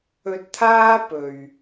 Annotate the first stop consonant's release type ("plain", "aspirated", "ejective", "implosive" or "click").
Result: plain